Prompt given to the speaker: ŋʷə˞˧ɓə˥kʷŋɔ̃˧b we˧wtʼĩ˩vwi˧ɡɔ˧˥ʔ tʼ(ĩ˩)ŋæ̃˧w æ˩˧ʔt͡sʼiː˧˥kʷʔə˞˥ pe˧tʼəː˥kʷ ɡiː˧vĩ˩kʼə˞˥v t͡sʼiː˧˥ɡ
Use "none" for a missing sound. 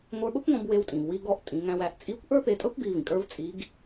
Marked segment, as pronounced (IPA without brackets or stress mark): ĩ˩˧